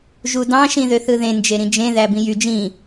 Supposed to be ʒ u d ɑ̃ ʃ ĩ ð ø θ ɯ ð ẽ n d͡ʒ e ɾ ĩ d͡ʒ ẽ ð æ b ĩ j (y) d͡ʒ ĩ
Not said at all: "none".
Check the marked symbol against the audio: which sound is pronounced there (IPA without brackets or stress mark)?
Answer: y